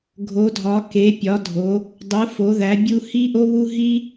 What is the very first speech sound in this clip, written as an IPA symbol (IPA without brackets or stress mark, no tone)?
ɡʱ